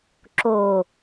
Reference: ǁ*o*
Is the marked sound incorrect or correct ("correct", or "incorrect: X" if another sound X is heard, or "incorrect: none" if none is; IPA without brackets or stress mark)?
correct